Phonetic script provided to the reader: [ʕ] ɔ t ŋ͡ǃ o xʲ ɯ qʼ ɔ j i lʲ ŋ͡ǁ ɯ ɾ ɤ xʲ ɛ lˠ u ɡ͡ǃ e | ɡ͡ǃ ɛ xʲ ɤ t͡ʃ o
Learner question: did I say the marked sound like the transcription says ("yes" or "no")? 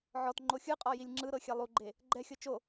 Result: yes